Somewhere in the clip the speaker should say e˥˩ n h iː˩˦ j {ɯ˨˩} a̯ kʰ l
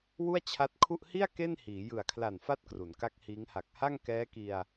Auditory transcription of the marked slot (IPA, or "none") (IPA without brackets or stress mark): ɯ˨˩